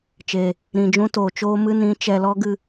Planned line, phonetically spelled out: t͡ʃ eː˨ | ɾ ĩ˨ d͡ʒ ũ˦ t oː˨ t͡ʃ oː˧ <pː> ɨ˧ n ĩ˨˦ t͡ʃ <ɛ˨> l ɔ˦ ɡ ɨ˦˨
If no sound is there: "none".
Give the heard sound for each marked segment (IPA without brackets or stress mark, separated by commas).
m, ɛ˨